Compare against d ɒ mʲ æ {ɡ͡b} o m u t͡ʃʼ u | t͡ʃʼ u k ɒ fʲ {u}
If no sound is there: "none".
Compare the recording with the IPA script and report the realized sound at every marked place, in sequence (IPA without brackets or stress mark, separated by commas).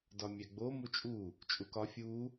ɡ͡b, u